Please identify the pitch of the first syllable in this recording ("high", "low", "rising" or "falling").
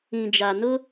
low